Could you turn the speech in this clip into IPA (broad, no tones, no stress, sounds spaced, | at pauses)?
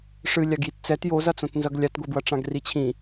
ʂ ɨ lʲ a ɡ j i t t͡s ɛ t j o z ɐ t͡s õ t n z ɐ ɡ lʲ a t ɡʷ ɛ b w ɐ ʈ͡ʂ ã ɡ r i t͡ɕʰ ĩ